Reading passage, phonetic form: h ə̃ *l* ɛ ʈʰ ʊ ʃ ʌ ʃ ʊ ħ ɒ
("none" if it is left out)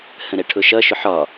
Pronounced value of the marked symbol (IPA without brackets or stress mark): ɾ